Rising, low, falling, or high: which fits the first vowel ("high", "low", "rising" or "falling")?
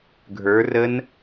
rising